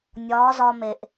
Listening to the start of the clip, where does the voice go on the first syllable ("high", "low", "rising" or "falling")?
rising